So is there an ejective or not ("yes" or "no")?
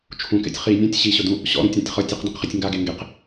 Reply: no